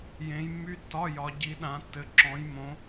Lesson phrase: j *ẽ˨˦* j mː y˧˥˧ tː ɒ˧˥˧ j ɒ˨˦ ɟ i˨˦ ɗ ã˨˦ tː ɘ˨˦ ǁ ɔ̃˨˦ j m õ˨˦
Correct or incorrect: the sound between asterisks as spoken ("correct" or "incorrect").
correct